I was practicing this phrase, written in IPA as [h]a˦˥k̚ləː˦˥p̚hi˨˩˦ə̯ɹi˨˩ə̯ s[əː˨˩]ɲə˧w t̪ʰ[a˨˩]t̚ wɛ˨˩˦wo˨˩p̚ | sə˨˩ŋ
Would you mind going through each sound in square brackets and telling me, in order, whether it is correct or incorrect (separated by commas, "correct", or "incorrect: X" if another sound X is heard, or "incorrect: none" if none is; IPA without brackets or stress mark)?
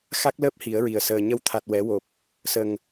incorrect: x, correct, correct